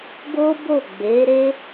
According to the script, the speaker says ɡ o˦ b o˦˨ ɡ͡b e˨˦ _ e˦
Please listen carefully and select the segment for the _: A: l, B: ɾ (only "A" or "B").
B